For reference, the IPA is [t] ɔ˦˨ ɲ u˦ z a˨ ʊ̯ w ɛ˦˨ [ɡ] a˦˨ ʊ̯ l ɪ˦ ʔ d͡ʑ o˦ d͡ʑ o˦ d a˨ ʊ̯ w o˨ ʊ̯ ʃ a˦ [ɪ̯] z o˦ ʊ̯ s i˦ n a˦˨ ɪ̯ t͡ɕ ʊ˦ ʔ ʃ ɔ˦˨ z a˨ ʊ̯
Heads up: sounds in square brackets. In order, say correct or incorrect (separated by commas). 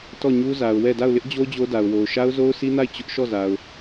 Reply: correct, incorrect, incorrect